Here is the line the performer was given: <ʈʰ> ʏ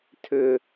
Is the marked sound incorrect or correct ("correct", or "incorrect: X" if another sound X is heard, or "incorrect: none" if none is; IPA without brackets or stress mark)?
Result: incorrect: tʰ